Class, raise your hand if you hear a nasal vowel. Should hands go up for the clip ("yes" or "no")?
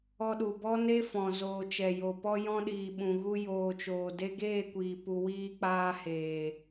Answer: yes